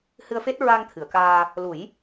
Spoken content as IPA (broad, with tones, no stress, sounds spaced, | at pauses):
h ɨ˧ ə̯ f e˦˥ t̚ ɹ a˧ ŋ t̪ʰ ɨ˨˩˨ ə̯ k aː˧ | l u˨˩˦ j